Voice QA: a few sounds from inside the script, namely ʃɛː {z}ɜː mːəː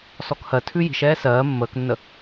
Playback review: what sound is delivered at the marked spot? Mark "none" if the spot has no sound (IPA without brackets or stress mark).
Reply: s